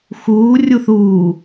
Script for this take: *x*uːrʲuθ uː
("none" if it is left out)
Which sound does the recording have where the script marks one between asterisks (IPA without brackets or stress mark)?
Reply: x